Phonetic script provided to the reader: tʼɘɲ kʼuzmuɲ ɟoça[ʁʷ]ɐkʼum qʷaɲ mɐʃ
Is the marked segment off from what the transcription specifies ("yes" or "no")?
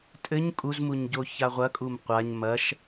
no